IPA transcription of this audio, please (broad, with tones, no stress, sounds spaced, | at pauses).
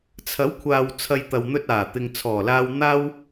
t͡sʰ ɐ˨˥ w kʷʰ aː˨ w t͡sʰ ɐ˧ j t̪ ɐ˨ w n̪ ɵ˧ t̚ aː˨˩ t̪ ɪ˨ ŋ t͡sʰ ɔː˨˩ l aː˧ w n̪ aː˥ w